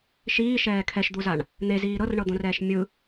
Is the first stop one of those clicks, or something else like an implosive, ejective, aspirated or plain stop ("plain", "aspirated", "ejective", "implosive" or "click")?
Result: aspirated